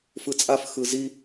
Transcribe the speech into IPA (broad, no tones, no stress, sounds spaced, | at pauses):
f ɯ t͡sʼ a f x ɯ z i